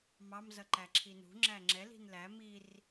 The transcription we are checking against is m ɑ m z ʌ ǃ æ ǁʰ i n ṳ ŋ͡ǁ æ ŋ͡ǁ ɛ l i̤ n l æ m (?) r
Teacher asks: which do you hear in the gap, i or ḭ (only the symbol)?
i